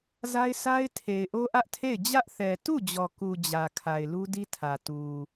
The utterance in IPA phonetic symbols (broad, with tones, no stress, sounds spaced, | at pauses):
z a˦ ɪ̯ sʰ a˦ ɪ̯ tʰ e˨ ɪ̯ ʔ o˦ ʔ ä˦ ʔ tʰ e˦˨ ɪ̯ d͡ʑ ä˦ ʔ θ ɛ˨ t u˦˨ d͡ʑ ɔ˨ k u˨ d͡ʑ ä˨ kʰ a˨ ɪ̯ l u˦ d i˦ tʰ ä˨ t u˨